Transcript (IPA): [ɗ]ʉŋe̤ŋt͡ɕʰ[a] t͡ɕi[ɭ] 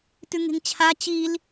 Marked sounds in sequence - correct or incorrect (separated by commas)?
incorrect, correct, incorrect